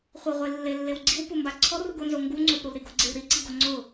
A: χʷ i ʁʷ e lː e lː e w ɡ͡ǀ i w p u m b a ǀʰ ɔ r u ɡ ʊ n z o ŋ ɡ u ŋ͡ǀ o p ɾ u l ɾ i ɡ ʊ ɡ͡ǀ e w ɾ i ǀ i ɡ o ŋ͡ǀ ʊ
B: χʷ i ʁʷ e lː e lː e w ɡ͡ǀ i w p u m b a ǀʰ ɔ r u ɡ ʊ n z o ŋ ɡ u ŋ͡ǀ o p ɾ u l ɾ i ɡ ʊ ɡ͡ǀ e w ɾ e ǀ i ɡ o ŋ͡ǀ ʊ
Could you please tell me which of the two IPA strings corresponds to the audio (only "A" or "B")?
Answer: A